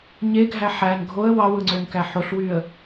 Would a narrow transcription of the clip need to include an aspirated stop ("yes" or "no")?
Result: no